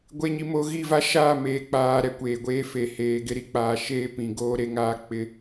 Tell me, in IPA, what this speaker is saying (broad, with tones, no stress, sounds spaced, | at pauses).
ɡʷ e˨ ɲ i˨ m o˨ ɣ i˦˨ v a˦ ʃ aː˦˨ m eː˨ k͡p aː˨ ɾ ɛ˨ kʷ eː˨ ɡʷ eː˦ f e˨ h eː˨ ɡ ɪ˦ ɾ i˦ k͡p aː˨ ʃ eː˦ p ĩ˨ ɡ oː˦ ɾ e˦ ŋ aː˦ k͡p ɪ˦